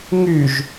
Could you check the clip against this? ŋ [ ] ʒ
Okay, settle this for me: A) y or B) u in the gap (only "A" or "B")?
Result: A